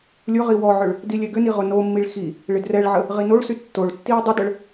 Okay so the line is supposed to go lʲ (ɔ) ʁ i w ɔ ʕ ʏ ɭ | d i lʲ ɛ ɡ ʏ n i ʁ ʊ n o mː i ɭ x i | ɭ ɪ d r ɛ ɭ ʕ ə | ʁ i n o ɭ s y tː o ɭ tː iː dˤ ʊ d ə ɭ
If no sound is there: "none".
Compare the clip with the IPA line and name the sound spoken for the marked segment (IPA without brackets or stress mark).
ʊ